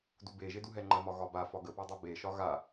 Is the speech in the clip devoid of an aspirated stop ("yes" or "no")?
yes